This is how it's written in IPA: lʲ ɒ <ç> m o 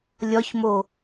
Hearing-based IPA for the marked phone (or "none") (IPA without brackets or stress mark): ç